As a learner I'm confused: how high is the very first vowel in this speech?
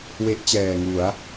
mid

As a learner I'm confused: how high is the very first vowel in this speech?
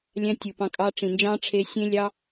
low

